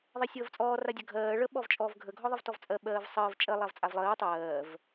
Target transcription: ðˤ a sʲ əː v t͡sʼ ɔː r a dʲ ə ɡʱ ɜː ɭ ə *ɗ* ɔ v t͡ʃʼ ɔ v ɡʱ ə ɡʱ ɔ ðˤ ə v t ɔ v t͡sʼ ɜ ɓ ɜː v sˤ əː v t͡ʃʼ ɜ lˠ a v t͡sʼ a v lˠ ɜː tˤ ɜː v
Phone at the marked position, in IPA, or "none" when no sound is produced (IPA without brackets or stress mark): ɓ